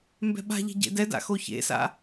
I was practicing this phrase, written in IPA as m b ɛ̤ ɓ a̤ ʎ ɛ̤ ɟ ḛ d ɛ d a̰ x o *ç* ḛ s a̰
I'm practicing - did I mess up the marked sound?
no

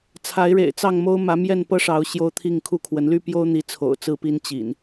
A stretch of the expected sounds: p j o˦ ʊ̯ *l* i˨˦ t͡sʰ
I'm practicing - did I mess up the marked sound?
yes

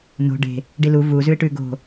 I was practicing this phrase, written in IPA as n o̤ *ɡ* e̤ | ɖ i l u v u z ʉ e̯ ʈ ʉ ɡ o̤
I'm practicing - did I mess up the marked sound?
yes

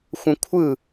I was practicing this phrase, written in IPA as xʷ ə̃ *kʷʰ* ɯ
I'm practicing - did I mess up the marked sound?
no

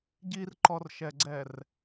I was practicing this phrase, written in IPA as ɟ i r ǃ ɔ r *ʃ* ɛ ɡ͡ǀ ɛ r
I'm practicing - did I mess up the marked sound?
no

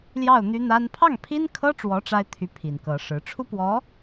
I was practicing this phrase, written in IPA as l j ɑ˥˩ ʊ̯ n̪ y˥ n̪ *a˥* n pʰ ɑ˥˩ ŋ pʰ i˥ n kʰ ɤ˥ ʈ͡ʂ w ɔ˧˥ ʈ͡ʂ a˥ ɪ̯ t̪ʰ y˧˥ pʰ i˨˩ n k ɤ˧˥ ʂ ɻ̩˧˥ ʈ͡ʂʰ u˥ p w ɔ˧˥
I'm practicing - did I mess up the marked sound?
no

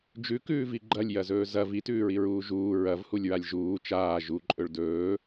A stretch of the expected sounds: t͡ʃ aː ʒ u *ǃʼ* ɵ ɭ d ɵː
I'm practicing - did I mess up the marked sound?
no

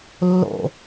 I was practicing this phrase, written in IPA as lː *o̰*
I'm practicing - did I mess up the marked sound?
no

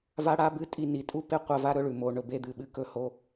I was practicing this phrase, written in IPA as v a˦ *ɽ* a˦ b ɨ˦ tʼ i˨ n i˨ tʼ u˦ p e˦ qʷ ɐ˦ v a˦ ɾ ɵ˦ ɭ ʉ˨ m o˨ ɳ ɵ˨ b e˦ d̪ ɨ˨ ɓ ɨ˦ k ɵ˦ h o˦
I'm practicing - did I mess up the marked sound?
no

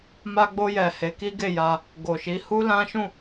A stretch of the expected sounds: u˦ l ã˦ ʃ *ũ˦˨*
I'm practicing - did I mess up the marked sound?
no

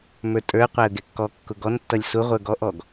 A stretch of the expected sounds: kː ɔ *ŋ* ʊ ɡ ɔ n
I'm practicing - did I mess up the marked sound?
yes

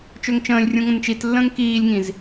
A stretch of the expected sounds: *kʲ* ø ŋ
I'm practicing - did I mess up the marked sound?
yes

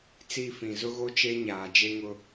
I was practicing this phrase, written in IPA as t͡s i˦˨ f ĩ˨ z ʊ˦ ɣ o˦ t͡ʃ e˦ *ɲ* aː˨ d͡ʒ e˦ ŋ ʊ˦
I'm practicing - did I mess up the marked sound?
no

